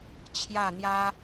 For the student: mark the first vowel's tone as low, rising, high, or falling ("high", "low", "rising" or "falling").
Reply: falling